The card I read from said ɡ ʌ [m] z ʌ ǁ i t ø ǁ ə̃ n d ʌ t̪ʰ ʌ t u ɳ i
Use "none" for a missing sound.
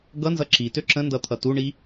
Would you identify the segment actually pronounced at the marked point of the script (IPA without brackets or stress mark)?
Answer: n